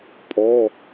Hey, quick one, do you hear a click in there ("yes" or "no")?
no